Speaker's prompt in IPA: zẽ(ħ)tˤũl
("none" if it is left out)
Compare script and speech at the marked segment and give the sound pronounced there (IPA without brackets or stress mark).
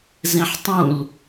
ħ